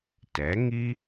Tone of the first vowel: rising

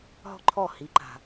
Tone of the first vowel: high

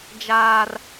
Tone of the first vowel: high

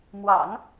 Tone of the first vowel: low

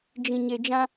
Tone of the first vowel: low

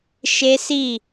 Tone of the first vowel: high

